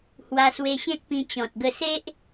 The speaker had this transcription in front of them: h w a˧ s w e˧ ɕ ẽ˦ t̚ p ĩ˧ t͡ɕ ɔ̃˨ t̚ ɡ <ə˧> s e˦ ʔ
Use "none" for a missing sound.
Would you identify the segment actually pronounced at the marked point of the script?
ə˧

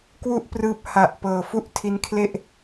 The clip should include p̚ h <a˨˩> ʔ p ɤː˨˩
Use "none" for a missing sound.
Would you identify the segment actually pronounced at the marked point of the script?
a˨˩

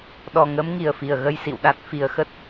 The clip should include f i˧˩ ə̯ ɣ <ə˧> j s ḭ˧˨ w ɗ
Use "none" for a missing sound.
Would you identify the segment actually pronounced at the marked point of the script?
ə˧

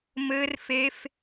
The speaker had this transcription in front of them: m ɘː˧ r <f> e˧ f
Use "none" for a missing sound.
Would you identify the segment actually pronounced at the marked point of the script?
f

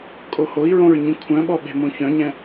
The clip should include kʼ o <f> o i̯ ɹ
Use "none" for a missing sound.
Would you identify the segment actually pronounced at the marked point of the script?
h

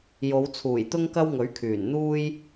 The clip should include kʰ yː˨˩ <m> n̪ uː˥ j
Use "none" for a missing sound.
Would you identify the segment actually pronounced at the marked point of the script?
n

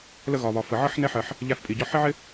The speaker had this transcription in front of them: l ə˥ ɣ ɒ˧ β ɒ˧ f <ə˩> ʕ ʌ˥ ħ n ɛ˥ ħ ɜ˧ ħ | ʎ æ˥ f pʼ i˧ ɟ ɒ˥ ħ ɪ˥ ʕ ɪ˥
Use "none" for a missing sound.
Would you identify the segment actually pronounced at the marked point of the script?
ə˧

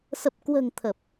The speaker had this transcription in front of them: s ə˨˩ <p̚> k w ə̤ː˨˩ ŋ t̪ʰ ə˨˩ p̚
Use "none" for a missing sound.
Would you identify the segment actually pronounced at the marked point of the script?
p̚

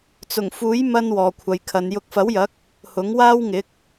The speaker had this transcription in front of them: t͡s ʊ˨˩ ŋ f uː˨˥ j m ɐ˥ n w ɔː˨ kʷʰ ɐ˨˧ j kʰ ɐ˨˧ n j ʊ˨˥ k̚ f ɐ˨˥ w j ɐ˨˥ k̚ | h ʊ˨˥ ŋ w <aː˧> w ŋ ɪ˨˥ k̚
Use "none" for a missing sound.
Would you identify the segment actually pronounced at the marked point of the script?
aː˥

